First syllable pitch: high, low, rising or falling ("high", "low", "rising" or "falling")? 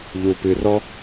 low